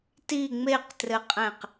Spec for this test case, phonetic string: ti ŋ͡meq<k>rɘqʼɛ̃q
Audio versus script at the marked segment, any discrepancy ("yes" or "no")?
yes